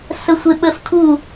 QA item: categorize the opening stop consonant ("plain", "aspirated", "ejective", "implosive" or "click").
implosive